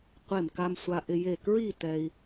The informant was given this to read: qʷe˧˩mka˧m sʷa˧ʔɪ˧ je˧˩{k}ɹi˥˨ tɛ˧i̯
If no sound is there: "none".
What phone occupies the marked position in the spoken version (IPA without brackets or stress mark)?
k